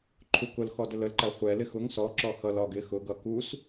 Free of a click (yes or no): no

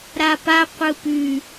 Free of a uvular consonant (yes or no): no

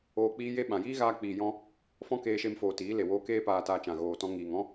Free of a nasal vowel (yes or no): no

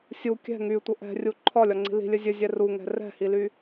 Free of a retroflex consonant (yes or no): yes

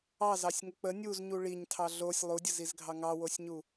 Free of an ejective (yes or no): yes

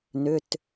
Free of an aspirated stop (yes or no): yes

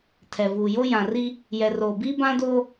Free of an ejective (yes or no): yes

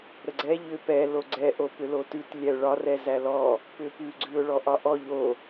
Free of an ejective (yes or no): yes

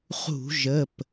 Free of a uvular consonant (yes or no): no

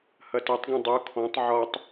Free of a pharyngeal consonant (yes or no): no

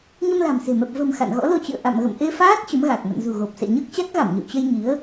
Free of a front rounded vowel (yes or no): yes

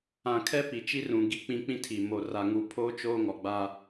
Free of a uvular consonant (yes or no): yes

